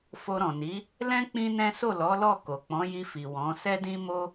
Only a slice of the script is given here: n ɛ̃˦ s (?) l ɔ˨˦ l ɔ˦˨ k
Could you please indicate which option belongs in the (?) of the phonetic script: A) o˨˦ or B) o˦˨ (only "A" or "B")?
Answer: B